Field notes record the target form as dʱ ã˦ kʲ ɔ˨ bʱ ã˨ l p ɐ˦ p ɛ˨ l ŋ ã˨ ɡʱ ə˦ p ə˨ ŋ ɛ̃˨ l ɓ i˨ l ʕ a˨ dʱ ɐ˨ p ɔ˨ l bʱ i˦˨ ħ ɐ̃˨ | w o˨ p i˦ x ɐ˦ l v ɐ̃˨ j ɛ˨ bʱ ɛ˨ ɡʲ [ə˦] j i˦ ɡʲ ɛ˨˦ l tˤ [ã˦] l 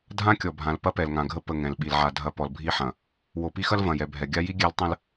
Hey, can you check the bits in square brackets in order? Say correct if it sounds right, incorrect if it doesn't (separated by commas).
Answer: incorrect, incorrect